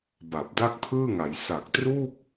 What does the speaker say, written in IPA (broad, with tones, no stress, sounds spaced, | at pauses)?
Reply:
b a˨˩ p̚ d a˥˩ k̚ pʰ ɯː˥˩ ŋ a˩˦ j s a˨˩ k̚ t r u˥˩ k̚